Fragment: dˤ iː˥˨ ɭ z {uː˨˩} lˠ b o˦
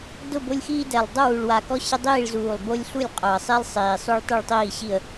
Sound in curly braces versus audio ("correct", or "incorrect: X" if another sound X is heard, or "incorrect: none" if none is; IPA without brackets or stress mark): correct